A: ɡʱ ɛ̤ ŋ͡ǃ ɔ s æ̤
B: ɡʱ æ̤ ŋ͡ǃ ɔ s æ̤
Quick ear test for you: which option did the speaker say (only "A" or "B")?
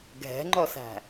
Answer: A